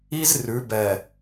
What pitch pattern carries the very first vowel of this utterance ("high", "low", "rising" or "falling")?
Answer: high